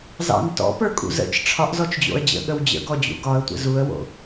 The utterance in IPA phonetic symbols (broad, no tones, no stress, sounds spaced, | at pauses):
z ɑ̰ n t ɔ̰ p ə˞ kʼ ṵ z ə̰ t͡ʃ ʈ͡ʂʰ ɒ ʔ z ɔ t͡ʃ d͡ʑ o̰ ə̯ d͡ʑ ə̰ ɠ ə w d͡ʑ ə̰ ɡ ɔ d͡ʑ ṵ ɡ ɒ ə̯ tʷ ə̰ z u ə̯ w o̰